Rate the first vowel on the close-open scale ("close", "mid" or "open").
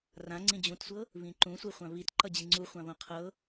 open